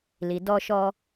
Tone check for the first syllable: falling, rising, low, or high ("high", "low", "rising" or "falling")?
low